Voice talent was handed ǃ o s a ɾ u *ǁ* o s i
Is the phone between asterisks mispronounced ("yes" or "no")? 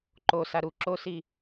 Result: no